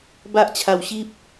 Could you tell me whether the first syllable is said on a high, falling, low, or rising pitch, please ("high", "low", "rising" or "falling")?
high